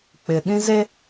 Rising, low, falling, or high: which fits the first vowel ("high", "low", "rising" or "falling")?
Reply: low